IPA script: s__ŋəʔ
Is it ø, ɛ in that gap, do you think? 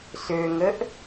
ø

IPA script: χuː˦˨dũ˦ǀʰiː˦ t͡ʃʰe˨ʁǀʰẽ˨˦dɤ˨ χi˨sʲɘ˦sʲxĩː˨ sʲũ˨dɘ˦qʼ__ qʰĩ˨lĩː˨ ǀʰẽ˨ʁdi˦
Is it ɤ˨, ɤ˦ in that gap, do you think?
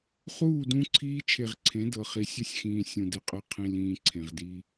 ɤ˦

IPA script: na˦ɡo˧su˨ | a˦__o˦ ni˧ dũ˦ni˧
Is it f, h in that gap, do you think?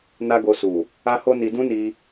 h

